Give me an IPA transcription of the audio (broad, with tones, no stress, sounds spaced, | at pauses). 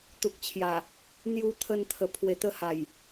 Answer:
t̪ u˨ k̚ t͡ɕʰ j a˨˩ | n̪ j u˧ t̪ʰ ə˧ n t̪ʰ ə˨˩ pʰ w e˨˩ t̪ ə˧ h a˨˩ j